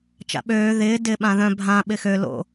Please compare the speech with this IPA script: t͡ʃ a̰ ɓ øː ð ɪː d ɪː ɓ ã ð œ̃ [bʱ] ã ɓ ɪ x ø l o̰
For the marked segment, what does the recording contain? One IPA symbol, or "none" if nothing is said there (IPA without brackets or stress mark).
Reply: bʱ